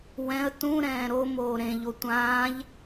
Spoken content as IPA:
wɛ̃ə̯ tũɾɛ̃ː ɾomoː ɾẽʎo tʷãːʎ

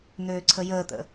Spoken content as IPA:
n̪øːǀʰəjəːt̪ə̰

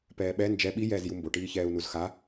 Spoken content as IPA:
pɛːɓɛ nd͡ʒɛ ɓi jɛːzjumbo ʈiːçɛːu̯nuzxa

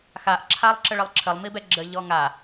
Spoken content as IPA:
xaʔǁʰalˠǁəɭəlˠ ǁʰəlˠmibɛ ɡ͡ǁəʎɔ ŋa

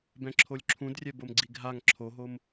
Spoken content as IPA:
bɛ̃ǁʰolʲǁʰũdrʲɛ bomɡ͡ǀiɡʱaŋ ǁʰoɦom

